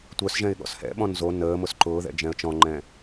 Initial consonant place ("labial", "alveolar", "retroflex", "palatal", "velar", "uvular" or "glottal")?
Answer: alveolar